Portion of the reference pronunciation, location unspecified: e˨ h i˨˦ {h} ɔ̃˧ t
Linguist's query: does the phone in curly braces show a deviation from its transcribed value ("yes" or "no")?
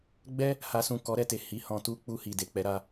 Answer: no